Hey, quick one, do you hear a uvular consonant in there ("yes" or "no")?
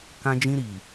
no